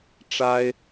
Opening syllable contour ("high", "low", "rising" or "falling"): high